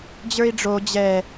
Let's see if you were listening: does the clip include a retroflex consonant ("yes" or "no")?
yes